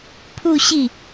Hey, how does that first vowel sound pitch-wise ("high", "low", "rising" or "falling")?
falling